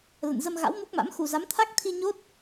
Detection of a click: absent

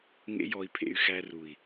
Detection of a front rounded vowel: present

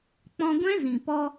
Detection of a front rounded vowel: absent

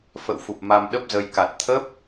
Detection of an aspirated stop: present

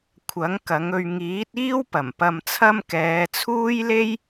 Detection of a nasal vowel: absent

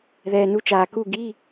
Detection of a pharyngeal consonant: absent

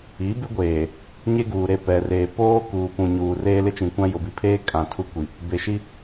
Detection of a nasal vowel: present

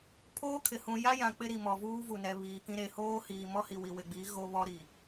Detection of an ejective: absent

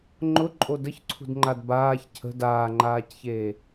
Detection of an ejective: present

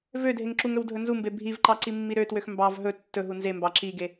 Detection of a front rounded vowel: present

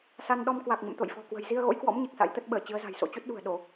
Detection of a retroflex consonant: absent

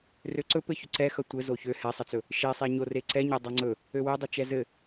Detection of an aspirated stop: absent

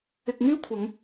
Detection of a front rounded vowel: present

